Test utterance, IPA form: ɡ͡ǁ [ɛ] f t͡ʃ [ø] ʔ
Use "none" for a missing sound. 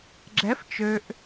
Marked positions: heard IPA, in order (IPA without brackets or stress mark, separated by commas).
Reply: ɛ, ø